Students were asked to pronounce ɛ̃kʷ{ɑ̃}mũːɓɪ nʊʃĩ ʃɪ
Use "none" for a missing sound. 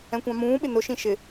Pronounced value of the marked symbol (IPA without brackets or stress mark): ɑ̃